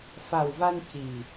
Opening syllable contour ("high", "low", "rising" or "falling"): low